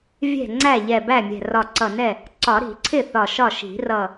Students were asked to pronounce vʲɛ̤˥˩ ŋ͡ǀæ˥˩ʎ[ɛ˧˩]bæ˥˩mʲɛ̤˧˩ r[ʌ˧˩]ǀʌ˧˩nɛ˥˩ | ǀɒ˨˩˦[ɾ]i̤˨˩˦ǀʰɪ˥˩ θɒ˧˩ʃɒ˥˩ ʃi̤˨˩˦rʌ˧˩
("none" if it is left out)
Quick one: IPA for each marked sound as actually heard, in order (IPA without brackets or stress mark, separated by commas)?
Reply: ɛ˧˩, ɒ˧˩, ɾ